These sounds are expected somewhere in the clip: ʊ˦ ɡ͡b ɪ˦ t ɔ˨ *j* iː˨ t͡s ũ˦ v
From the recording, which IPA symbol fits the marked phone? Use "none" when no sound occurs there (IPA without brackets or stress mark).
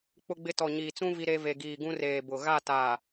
ɲ